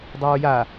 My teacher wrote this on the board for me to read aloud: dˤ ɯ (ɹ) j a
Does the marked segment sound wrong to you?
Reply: no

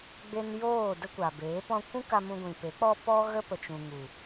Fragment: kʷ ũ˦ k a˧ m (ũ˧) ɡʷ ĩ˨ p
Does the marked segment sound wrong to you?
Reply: no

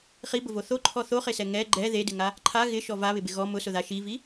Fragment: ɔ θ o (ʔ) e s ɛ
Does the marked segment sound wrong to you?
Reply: yes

